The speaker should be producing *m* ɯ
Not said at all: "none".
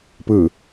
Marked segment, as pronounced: p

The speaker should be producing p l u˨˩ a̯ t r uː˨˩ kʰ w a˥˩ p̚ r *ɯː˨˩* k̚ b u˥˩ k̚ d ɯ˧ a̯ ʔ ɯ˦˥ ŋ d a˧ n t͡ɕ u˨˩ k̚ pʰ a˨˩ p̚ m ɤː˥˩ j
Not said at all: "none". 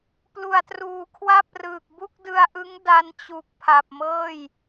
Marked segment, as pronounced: ɯː˨˩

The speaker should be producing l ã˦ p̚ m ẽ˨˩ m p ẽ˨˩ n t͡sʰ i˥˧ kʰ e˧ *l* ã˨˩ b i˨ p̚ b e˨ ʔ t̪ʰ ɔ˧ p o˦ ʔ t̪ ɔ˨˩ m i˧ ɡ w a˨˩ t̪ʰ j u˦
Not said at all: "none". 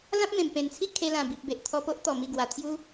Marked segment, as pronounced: l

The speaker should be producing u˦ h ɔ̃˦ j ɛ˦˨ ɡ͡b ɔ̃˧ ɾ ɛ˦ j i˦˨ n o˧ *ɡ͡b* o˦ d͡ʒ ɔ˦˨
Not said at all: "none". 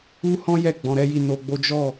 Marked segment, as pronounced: ɡ͡b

